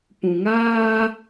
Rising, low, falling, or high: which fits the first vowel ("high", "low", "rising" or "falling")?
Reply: low